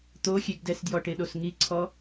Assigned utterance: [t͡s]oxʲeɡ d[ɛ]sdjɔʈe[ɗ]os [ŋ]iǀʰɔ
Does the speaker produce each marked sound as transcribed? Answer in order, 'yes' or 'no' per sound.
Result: no, yes, yes, yes

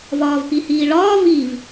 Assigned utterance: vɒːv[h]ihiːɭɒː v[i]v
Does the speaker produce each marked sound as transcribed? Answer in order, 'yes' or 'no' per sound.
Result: no, yes

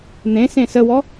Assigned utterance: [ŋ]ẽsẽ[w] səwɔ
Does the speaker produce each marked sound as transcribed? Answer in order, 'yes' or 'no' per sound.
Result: no, no

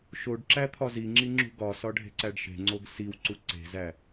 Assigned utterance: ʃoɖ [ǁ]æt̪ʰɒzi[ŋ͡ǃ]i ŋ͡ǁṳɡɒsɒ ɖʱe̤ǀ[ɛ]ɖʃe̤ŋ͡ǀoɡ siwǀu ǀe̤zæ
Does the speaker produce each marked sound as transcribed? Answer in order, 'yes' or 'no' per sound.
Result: yes, no, no

